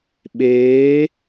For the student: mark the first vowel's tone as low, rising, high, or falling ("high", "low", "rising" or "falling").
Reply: rising